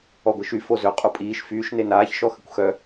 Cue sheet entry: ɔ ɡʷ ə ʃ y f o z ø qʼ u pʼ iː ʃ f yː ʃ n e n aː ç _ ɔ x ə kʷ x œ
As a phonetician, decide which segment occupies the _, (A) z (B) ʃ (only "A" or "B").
B